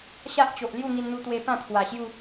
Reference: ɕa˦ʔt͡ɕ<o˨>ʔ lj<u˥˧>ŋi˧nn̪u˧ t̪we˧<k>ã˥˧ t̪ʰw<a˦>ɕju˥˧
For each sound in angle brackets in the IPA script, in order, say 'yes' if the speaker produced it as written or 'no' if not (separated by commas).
yes, yes, no, no